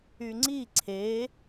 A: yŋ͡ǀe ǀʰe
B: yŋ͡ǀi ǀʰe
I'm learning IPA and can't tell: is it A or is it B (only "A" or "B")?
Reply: B